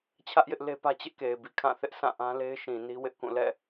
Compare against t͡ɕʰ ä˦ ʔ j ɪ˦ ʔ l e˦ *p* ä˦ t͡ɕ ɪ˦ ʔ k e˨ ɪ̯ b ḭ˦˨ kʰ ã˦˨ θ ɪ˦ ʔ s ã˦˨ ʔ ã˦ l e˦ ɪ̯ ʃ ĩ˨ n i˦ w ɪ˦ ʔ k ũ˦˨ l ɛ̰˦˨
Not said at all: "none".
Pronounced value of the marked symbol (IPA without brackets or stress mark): p